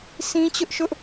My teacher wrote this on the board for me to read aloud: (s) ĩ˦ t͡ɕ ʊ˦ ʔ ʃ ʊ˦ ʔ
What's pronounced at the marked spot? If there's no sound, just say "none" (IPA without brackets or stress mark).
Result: s